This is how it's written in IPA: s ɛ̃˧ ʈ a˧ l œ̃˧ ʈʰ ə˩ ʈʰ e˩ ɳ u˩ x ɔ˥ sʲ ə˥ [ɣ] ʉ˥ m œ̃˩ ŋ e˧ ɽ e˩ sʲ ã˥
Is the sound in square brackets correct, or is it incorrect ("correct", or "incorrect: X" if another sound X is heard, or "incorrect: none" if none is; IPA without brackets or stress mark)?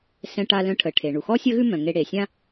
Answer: correct